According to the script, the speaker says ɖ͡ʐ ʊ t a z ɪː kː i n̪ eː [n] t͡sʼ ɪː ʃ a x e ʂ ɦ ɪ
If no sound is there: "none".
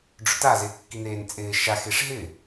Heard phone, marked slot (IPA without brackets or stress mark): n